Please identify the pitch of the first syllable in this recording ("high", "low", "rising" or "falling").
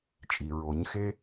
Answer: low